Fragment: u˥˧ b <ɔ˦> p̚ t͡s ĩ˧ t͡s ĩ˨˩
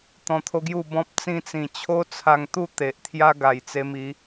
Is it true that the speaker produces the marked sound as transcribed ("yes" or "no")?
no